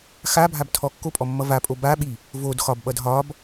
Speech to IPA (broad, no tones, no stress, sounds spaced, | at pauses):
x a bʱ a b tʰ ɔ kː o pʼ ɔ mː ʌ v a pʼ o b a ɓ i | v o d x ɒ b ɓ ʌ d ɦ ɒ b